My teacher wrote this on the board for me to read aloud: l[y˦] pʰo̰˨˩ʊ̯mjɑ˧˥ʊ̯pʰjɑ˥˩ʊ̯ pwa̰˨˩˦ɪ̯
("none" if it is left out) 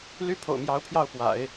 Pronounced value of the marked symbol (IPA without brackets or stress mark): y˥